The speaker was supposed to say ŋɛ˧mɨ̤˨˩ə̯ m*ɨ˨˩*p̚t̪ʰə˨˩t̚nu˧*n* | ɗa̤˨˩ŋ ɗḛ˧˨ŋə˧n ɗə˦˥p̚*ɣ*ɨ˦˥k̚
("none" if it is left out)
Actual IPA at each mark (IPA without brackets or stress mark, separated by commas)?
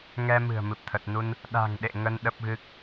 ɨ˨˩, n, ɣ